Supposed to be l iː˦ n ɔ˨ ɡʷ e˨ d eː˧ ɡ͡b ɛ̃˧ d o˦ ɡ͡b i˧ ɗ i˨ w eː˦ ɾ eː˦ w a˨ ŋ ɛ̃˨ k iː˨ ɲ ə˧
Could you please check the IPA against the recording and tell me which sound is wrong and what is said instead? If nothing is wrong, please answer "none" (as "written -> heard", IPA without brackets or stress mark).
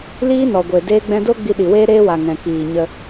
none